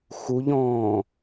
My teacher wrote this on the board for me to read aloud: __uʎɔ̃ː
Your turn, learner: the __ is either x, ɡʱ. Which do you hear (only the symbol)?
x